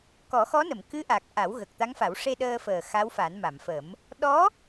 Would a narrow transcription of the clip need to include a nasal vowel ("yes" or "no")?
no